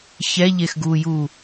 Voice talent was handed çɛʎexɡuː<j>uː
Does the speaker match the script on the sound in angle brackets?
yes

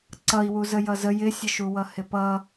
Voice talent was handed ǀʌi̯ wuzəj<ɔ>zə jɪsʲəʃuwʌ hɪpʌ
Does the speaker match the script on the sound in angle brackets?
no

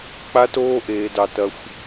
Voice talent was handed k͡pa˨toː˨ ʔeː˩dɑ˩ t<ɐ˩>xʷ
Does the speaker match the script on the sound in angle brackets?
yes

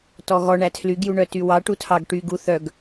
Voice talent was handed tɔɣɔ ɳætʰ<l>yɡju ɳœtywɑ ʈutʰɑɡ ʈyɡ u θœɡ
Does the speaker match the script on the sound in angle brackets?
yes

